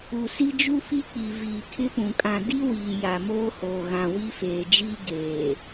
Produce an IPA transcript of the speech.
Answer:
u˨ s i˦ d͡ʒ u˦ f i˦ k͡p i˨ v iː˨ kʰ ɪ˦ p ũ˨ kʼ ã˨ d i˦ w iː˨ j a˨ m oː˦ h oː˨ ɣ ã˨ w i˦ f eː˨ d͡ʒ iː˦ ɡ eː˨

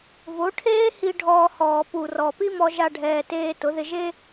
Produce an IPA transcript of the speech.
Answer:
v o˩˥ ʈʰ eː˥ h i˧ ɖʱ ɔː˧ h ɔː˨˩ p u˨˩ r ɔ˨˩ p i˥ m ɔ˧ ʒ a˧ ɖʱ ɛː˨˩ t eː˧ t ʊ˩˥ ð ɪ˧ ʒ e˥

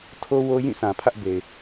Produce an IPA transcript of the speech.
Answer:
tʰ o˦ w o˦ j ĩ˦˨ sʰ ã˨ pʰ ä˦ ʔ b e˨ ɪ̯

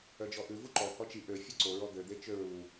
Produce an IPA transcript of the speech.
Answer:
œ d͡ʒ ɔ ʔ ʉ v u ǃ ɔ h ɔ t͡ʃ i ʔ ø fʲ œ ǀ o ɹ ɔ d̪ ø d̪ e t͡ʃ ø ɹ u

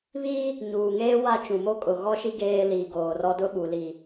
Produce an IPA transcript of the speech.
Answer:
β i˦ | ɲ uː˨ ŋ eː˦ w a˦ t͡ʃ ũ˨ m o˦ kʼ ʊ˨ ɣ ɔ˦ ʃ i˦ ɡ eː˦ l iː˨ ɡ oː˨ r ɔ˦ d ʊ˦ ɓ u˨ l i˨

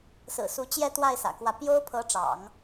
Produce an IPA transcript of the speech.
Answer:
s ɹ̩˨˩ s u˧˥ t͡ɕ j ɛ˥˧ t̪ w a˥˩ ɪ̯ s ä̰˨˩ k w ä˥˩ p j o˥ ʊ̯ pʰ ɤ˧˥ ʈ͡ʂ ɑ̰˨˩˦ ŋ

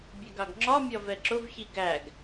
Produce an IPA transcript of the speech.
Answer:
bʲ ɛ ɡ ɑ ɡ ŋ͡ǁ ɒ mʲ ɒ v ɛ ǁ ʊ v ç i ɡ æ ɡ

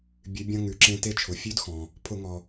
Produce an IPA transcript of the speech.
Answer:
bʲ ʉ˩˧ bʲ ɐ̃˧ ŋ ʉ˩˧ ǁ ẽ˧ t e˧ t͡ʃʰ ʊ˩˧ fʲ ʉ˧˥ d x ɔ̃˩ | pʰ ʊ˧˩˧ ŋ ɔ˩

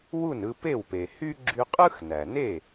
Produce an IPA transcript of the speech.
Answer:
w u˥˩ n ɯ˧ p e˥˩ w p e˩ h y˥ ɡ͡ǁ y˧ qʼ ɯ˥ x n æ˩ n e˥˩

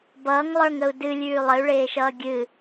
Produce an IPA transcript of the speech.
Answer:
b ʌː ŋ lˠ ə˞ ŋ ə u̯ d ɨ lʲ ʉː lˠ ə y̯ ɭ eː ʃ ʌː ɡʲ ɨ

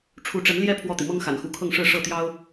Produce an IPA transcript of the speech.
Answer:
ʈ͡ʂʰ u˧˥ ʈ͡ʂ ə˧˥ n l j ɛ˥ pʰ w ɔ˥˩ t̪ i˩ m ɤ˥ ŋ x a̰˨˩ n x u˧˥ kʰ ɤ˥˧ ŋ ʂ ɻ̩˥˧ ʂ ɤ˥˩ t̪ j ɑ˥ ʊ̯

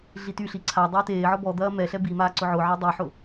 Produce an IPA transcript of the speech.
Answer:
ɮ i t y ɬ i ǀʰ a dˤ eː t eː ʕ ɔ b ɔ d̪ ɐː m ɛ ɬ ɛ b i m aː ǀ ʊ ʕ ʊ ʕ e dˤ i ħ ʊ

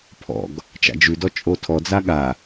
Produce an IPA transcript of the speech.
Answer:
pʰ ɔ̰ ɡ | t͡ʃ a̰ d͡ʒ ʉ d ɔ t͡ʃʼ o tʰ ɔ d͡z a ɠ a

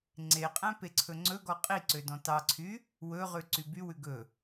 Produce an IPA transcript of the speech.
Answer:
ŋ͡ǀ e qʼ æ̃ p e ǀʰ ɵ ŋ͡ǀ ɵ ɡ ɔ qʼ i ǀ ø d ɔ̃ t ɑ ǀʰ y | w ɵ ʁ ʉ ǀ y b y w ʉ ɡ ɵ

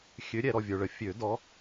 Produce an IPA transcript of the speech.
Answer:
xʲ ø˨˦ ɾʲ ɛ˨ ɾ ɔ˨ vʲ ə˞˨ ɭ ə˨˦ fʲ ø˨˩˦ d ɔ˨˦

